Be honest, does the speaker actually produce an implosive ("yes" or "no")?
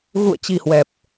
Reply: no